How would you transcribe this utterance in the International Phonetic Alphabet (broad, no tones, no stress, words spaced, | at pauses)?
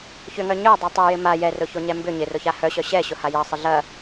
çʏŋœ ɲœ dˤotˤœjɪ ma jɛrʊ çoɲɛmbʏ ɲɪrʊ çahœɕœ ɕɛ ɕʊhajɐ sˤəɮɐ